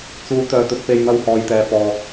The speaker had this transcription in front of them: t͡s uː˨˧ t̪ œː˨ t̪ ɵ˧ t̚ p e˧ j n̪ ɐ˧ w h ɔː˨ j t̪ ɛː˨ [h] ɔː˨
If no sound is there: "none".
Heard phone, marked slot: f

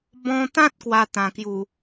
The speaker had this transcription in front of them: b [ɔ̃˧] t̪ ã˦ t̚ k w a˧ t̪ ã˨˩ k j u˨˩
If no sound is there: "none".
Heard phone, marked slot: ɔ̃˧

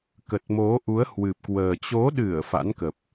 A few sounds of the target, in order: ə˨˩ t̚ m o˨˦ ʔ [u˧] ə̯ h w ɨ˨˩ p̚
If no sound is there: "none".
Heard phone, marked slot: u˨˦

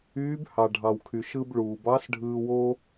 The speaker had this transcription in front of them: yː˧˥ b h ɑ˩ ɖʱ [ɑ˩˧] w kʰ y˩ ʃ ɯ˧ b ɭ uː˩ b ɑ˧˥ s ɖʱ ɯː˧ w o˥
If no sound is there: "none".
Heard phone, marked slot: ɑ˩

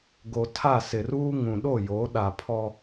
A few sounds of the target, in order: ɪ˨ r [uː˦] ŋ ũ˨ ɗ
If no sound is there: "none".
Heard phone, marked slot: uː˦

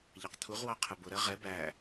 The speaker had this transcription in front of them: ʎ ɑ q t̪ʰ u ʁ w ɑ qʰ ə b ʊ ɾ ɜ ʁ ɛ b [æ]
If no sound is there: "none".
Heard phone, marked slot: æ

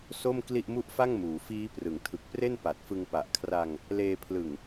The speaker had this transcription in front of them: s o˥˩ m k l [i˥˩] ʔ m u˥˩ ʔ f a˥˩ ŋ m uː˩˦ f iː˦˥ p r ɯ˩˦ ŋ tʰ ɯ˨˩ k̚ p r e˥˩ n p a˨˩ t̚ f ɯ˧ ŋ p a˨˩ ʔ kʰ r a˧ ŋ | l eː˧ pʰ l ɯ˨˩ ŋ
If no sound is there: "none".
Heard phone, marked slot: i˥˩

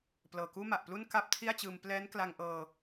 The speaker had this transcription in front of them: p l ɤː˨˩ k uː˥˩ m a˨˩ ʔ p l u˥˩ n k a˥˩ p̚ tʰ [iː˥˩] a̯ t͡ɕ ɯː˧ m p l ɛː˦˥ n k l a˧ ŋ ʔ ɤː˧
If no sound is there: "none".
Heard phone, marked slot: i˥˩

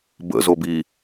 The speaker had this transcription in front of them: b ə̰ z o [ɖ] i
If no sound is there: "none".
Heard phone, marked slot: b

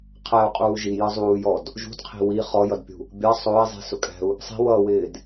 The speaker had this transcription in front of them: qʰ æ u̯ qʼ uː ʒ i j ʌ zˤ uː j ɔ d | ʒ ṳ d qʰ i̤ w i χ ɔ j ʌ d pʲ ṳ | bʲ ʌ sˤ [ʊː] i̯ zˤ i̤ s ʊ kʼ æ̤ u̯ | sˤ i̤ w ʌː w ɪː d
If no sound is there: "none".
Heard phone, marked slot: ʊː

